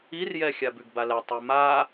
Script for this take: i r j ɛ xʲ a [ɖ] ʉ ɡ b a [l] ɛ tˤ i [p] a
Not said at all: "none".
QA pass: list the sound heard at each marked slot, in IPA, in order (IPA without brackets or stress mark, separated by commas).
b, l, m